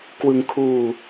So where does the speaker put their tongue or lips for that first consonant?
velum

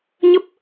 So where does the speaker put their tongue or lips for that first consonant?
palate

